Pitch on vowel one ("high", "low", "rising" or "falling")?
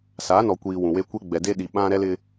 rising